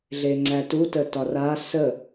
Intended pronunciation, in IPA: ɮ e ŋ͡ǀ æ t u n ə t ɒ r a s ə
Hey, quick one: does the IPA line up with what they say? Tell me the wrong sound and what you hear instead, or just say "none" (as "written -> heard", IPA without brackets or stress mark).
n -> t